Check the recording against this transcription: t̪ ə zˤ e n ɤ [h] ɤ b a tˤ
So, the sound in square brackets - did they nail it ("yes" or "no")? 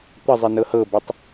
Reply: yes